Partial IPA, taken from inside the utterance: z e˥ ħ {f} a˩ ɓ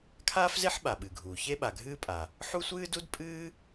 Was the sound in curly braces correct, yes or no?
no